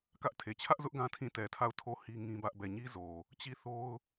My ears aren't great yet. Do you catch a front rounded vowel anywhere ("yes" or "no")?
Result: no